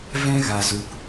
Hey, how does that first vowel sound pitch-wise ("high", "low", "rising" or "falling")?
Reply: high